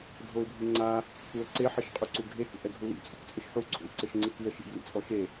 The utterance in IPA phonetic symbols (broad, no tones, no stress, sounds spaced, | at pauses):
dʱ o ɪ̯ bʱ i ŋ͡ǀ a | k u ə̯ ǀ e ħ i ʃ qʼ u ǀ u ɡʱ e k ṵ ʔ ɛ ɡʱ u l ḭ t͡sʼ ṵ k t͡sʼ ɘ ʃ ħ u ǀʰ ṵ l ǀ ɘ ʃ ŋ͡ǀ i k i ə̯ ʃ ḭ b l ḭ t͡sʼ ɔ ʃ e